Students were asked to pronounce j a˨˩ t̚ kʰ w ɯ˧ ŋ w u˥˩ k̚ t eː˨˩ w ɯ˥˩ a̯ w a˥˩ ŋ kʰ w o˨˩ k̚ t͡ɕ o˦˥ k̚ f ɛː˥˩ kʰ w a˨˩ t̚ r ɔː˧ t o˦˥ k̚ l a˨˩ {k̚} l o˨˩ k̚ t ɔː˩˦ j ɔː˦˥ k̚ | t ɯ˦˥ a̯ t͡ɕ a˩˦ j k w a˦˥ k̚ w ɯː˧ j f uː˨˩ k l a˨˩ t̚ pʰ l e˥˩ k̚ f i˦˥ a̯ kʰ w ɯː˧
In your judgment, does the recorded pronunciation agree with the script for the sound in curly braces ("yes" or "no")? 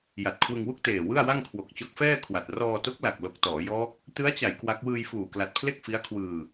yes